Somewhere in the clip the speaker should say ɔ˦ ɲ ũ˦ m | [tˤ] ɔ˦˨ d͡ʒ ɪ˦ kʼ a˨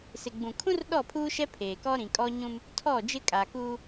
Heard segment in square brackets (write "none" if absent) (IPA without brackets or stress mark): tʰ